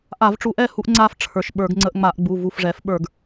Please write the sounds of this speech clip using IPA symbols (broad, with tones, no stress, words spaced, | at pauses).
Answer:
ʔa˧˩˧vʈ͡ʂu˧˩˧ʔɛ˥˨ hu˧ʔŋ͡ǀa˧f ʈ͡ʂʰə˞˩˧˩ʃɓə˞˧˩˧ɡŋ͡ǀə˧ʔ ŋ͡ma˧˩˧ʔɡ͡bu˩˧˩ vu˧˩fʐɛ˩˥f ɓə˞˧˩˧ɡ